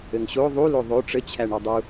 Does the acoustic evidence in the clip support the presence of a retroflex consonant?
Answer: yes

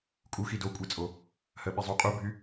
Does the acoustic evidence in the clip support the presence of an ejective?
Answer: yes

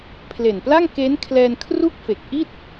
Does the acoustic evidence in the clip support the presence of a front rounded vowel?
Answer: no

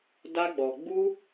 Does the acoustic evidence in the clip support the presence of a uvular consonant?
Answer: no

